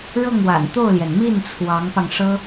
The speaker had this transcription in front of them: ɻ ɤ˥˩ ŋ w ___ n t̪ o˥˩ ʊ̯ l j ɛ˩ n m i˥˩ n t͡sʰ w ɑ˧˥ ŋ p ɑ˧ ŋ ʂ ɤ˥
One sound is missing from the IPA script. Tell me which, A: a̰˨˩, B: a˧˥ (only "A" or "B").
A